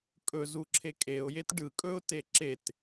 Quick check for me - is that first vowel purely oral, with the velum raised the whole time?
yes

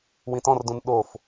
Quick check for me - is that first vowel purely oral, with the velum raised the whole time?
no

